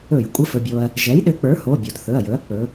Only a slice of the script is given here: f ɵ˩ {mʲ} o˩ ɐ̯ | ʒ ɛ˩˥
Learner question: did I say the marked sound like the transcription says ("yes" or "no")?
no